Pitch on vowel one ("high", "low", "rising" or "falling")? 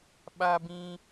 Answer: high